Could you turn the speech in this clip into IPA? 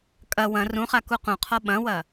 kʼɐ wɐ̃ rũχa kuqũqʰɔ ɓɐ̃wɐ

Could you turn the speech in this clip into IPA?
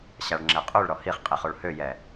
ɕaɭŋ͡ǁɛqʼuɭ ɾɔhiχqʼiχoɭ højɛ

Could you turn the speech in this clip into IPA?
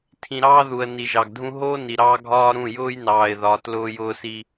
tʰĩ˨ɾɑː˦ðu˨ə̯ ni˨ʒɑ˨ɡdʱũ˦ ɦoː˦ni˨ɾɑː˦ ɡʱɒː˦ɾũ˦˨ jʊː˦jnɑː˨ɪ̯ðɒ˨ tlʊː˦jʊː˦si˦

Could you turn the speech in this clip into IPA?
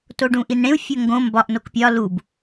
toɖũʔinɽẽu̯ fʲoŋɡõ mbɒʔ nokpʲɒ lub

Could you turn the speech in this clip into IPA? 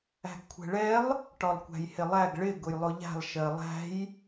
æ̤ɡkʷʰɛ̤ɭɛlˠ | ʈɒlˠkʷæ̤jhɪlˠæɡ ɭɪ ɡʊjlˠʊʎæ̤lˠ ʃɜlˠæ̤j

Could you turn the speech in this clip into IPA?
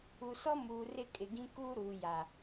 u˨sɔ˦ muː˨rɪ˦˨kʼɪ˨ɡĩ˦ kuː˦ɾuː˨ja˨

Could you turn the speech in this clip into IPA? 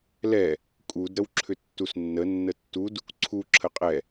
lɛ | kʼud ɾəwǁʰʏtːusnːə nːətːud | ǀʰu ǁʰəqʼɛ

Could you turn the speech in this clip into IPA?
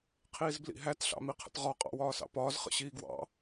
qʰiːzblḭɦæt ɬɑ̰miqʰə̰tʁɒ qʼɑ̰wɒːsɑ̰pɒːz χə̰ɕiːɡwɑ̰

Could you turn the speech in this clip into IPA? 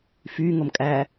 fy ŋomkʼæ

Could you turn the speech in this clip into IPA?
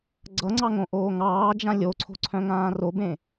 ɡ͡ǀʌŋ͡ǀɑŋõʔoː ŋɑːd͡ʒã lʲoǀʰo̤ǀʰœ̃ŋãː robẽ

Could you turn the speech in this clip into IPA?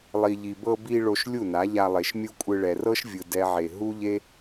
lˠi˨ʎi˨bɤ˧ bi˧ ɭo˧ʃlʲu˦˨na˨˦ ʎa˧ lˠe˨ʃmʲu˦kʷʼɯ˧ ɭɛ˨rɤ˦ʃvʲɯ˨ dɛ˦ʕe˧ ɦu˦ʎe˦

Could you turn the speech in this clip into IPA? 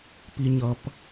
pi˨ ɲʌ˨p

